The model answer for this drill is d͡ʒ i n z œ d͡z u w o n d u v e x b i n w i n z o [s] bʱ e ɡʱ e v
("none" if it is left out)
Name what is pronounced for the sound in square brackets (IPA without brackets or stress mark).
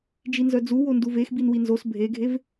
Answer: s